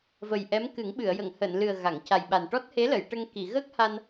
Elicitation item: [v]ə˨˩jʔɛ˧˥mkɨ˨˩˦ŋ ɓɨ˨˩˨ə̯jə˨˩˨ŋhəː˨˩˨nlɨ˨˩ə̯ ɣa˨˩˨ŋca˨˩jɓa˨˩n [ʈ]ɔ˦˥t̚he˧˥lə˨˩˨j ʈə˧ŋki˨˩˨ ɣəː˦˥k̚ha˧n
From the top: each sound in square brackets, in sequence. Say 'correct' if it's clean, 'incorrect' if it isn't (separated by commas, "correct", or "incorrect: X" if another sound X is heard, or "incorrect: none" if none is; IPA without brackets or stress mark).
correct, correct